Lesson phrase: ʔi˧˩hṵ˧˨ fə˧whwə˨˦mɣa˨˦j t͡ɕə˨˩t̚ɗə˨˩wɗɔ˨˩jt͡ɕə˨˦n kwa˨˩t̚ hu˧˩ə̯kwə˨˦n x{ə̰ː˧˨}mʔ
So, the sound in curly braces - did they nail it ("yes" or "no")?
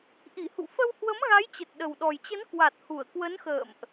yes